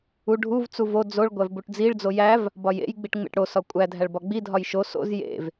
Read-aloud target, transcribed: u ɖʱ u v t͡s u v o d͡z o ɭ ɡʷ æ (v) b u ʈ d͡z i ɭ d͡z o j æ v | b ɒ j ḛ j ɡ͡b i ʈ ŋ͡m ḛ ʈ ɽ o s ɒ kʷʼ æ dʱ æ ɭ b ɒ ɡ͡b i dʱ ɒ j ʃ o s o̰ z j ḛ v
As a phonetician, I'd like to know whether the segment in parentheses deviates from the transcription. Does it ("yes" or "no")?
no